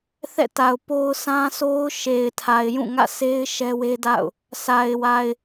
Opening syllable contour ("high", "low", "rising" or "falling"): falling